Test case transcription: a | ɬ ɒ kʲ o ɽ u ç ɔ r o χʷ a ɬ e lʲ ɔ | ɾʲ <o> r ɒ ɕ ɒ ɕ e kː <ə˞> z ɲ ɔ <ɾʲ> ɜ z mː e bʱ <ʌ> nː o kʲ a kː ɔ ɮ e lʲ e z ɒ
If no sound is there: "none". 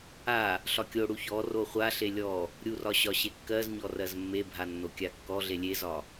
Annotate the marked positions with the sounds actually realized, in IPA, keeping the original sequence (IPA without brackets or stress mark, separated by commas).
u, ɜ, r, a